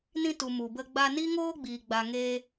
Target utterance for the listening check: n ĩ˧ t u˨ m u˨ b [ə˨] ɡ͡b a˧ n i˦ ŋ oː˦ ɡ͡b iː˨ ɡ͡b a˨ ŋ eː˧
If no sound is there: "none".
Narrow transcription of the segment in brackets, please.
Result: ə˧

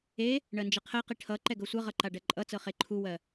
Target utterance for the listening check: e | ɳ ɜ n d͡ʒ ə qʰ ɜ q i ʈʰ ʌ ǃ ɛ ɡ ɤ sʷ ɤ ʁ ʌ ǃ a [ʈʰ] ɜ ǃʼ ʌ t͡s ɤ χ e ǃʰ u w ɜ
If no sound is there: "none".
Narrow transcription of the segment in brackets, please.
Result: ɖ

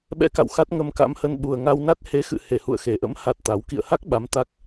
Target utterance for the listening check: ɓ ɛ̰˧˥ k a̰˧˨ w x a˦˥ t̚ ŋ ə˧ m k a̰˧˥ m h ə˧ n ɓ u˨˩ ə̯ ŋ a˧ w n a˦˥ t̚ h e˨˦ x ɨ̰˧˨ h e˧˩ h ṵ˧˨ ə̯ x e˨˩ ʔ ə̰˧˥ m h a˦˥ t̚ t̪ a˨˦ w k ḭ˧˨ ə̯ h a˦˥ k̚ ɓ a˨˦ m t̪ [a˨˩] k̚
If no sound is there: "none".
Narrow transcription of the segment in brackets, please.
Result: a˦˥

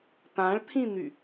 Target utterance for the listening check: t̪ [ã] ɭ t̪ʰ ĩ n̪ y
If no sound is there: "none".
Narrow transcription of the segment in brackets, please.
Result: ã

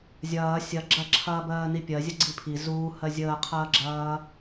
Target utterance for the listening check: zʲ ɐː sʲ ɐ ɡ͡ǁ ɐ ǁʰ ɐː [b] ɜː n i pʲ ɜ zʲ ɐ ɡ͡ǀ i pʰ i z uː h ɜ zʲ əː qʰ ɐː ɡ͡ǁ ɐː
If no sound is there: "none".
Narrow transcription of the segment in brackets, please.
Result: b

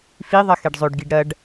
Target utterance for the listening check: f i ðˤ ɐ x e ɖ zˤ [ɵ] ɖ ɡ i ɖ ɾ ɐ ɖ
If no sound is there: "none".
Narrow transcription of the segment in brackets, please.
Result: ɵ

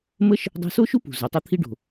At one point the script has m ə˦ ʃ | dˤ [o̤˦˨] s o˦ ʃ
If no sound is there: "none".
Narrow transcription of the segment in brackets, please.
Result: o̤˧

